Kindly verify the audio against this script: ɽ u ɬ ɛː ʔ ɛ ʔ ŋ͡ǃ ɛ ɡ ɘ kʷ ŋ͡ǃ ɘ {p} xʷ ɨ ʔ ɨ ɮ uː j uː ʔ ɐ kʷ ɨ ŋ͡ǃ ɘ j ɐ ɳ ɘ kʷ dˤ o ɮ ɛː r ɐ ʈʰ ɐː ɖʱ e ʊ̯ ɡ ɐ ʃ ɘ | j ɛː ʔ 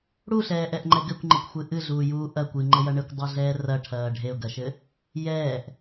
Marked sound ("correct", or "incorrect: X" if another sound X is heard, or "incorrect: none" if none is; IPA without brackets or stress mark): incorrect: kʷ